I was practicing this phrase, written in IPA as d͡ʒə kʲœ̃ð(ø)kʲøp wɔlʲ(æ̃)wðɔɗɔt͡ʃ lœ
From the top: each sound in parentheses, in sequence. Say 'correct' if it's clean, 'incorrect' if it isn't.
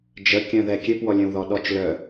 incorrect: ɛ, incorrect: œ̃

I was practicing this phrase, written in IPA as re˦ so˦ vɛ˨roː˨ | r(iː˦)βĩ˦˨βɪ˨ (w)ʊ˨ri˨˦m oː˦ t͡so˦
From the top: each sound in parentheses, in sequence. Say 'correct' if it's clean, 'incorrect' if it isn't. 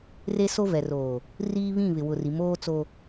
correct, correct

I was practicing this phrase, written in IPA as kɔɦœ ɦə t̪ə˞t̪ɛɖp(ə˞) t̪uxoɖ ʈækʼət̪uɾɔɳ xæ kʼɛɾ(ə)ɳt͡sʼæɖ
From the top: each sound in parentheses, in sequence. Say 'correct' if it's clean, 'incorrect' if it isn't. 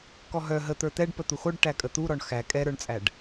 incorrect: ə, incorrect: ə˞

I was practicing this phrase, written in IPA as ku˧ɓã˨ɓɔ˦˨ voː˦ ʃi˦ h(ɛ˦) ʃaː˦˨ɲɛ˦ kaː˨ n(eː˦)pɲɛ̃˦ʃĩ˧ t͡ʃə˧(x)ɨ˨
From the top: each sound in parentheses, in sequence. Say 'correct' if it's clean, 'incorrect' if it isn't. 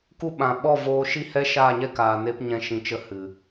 correct, incorrect: e˦, incorrect: h

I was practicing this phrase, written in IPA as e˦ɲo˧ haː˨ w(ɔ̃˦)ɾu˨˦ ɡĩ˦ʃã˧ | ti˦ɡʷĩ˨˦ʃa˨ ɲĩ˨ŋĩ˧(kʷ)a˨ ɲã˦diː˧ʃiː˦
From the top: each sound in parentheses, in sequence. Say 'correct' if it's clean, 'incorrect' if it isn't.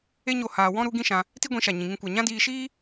correct, correct

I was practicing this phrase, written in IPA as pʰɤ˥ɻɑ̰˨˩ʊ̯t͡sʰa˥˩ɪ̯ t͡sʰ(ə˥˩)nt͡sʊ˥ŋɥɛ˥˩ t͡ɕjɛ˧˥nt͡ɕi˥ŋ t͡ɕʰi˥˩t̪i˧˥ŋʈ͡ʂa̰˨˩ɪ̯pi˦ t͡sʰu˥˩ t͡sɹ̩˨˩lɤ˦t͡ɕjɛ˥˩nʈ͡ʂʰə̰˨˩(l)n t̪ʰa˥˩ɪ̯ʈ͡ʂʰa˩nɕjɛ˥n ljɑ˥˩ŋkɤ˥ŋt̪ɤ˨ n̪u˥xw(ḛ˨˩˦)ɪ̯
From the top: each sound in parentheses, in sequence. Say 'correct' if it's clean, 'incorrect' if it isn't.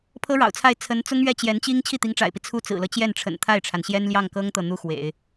incorrect: ə˧˥, incorrect: none, correct

